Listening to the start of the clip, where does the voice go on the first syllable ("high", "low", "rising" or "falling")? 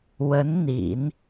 rising